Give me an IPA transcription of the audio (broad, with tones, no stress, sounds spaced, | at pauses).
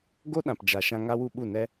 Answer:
ɡ o˦ ɗ ã˨ p d͡ʒ a˨ ʃ ã˧ ŋ a˦ w u˦ ɓ u˦˨ n ɛ˦